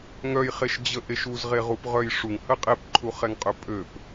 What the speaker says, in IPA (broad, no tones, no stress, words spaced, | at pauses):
ŋœjχeʃd͡ʑəʔeʃ uzʁeʁupʁœj ʂuŋhə qʼepǃʰuχɛŋqʼø pʼøp